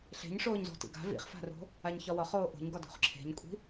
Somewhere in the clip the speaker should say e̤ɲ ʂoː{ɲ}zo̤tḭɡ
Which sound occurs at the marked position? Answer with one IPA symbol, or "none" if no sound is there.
ɲ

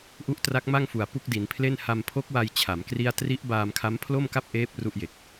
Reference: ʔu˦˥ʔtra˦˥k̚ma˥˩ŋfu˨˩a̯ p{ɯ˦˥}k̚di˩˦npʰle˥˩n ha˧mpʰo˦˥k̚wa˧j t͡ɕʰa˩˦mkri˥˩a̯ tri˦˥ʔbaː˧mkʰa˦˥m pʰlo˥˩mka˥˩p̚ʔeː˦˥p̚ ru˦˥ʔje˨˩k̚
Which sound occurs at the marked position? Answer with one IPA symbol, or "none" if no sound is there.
u˦˥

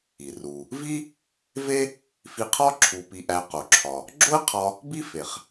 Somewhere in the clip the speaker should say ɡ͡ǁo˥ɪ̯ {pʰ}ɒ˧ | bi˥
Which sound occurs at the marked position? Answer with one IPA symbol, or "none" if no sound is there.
qʰ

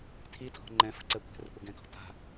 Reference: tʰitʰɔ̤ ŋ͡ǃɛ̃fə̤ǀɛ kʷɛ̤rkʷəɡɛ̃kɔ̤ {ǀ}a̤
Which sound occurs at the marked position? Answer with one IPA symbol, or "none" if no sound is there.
t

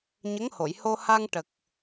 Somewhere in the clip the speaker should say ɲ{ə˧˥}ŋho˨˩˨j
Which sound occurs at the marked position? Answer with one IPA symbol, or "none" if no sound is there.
ə˧˥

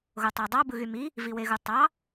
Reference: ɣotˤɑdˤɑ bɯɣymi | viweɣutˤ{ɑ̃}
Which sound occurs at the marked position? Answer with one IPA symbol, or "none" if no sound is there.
ɑ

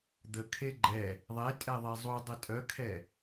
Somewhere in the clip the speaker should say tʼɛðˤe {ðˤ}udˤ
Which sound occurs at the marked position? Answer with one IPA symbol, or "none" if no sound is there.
zˤ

